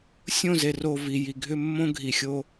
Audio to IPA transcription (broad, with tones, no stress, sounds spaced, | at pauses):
sʲ õ˦˨ z e˨ r o˨ v i˨ j i˨ ɡʱ ʏ˦ mː õ˦ ɡʱ i˨ xʲ o˦